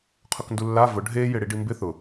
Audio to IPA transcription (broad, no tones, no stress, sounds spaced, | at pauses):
qʰ ʊ k n d u lː a v ʊ ɖʱ e j ɪ ɽ i ɖ i m b ɪ θ ʊ